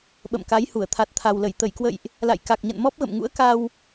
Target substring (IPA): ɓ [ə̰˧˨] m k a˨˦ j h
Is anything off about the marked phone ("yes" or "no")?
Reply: no